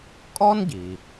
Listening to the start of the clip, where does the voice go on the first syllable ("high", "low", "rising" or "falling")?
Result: high